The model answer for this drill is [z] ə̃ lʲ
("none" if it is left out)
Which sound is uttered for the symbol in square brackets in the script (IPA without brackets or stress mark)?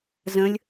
z